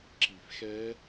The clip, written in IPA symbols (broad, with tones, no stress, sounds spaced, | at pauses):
ǁ i˨˩˦ f x ɛ˦˥